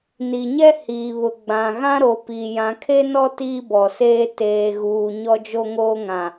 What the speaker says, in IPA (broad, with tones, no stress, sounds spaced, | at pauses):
n i˨ ɲ ɛ˦ h iː˨ β ʊ˨ ɡ͡b ã˨ ɣ ã˦ ɾ o˨ p i˨ j ã˨ kʰ e˦ n ɔ˦ t iː˦ b ɔ˨ s eː˦ t eː˨ ɣ uː˨ ɲ ɔ˦ d͡ʒ o˦ ŋ oː˦ ŋ ã˨